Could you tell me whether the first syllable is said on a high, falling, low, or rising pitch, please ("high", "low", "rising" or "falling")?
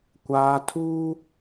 low